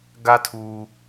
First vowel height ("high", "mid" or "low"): low